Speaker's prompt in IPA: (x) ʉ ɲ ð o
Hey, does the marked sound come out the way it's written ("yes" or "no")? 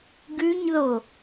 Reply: no